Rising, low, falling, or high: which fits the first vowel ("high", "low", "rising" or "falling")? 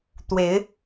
rising